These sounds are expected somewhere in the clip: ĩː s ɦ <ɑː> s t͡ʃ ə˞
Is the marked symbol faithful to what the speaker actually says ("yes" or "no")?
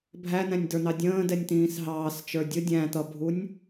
yes